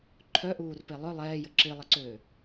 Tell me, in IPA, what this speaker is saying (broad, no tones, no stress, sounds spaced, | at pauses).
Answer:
ǃʰ œ ʔ uː r p e lˠ œ lˠ ɛː j ə ǁ i lˠ ə ǀ øː